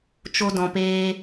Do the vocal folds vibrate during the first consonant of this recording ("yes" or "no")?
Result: no